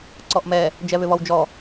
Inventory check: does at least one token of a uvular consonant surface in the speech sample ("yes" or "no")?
no